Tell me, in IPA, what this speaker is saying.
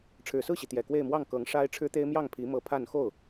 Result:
ʈ͡ʂʰ ɻ̩˨˩ s ɹ̩˥˩ ɕ i˩ t̪ j ɛ˨˩ k w e˥˧ ɪ̯ m w ɑ˥˩ ŋ k ɤ˧˥ ŋ ʂ a˥ ɪ̯ ʈ͡ʂʰ ɻ̩˥ t̪ e˥ ɪ̯ m j ɑ˥˩ ŋ pʰ i˧˥ m ɤ˧˥ pʰ a˥˧ n x o˥˩ ʊ̯

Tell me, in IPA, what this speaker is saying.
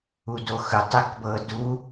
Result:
u d o x ɯ tˤ e k b ɤ d u

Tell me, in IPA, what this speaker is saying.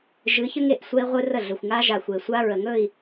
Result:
ʒ ɨ˨˦ ç ə˦ ŋ e˦ ʔ sʷ ɛ˦ i̯ ʁʷ ɨ˦ r ə˦˨ ɮ ɵ˨ xʷ ŋ a˦ ʒ a˨ xʷ e˨ sʷ a˦ ɹ ə˨ ŋ ɵ˦˨ i̯

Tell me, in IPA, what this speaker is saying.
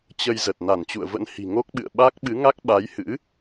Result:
t͡ɕ ə˧ j z ə˨˩ t̚ n a˧˩ n t͡ɕ ṵ˧˨ ə̯ v ə̰˧˥ n h i̤˨˩ ŋ o˦˥ k̚ ɓ ɨ̰˧˨ ə̯ ɓ a˦˥ k̚ ɓ ɨ˨˦ ŋ a˦˥ k̚ ɓ a˨˦ j h ɨ̰˧˥

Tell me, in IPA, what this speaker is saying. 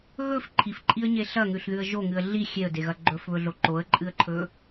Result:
ɣ ɵ f ǃʰ i f ǃʼ i ə̯ ɲ e ɬ ɐ ŋ ʉ ɬ ð ʉ ə̯ ʒ o ŋ ɨ ə̯ ɮ i xʲ e ə̯ d e ɣ ɐ ɡ͡ǃ ɵ f β ɵ ɮ o ǃ o ə̯ ǃʼ ɨ ə̯ ǃʰ ɵ

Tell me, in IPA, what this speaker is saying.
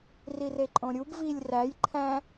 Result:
r i r e ǃʼ õ ɾʲ u b v i lʲ r æ j ǃʰ æ̃

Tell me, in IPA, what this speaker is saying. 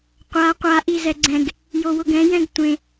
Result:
qʷ a qʷ a ʔ i z ɛ ɡ͡ǀ ɛ̃ ɡ | j o w ʊ ɡ ɛ̃ j ɛ̃ ɡ tʷ ẽ

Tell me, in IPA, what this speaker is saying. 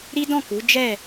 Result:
ɾ i˦ d ɔ̃˦˨ k u˨˦ d͡ʒ ɛ˦˨

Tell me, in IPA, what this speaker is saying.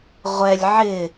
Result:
ʁʷ ɛ lʲ ʕ ɪ

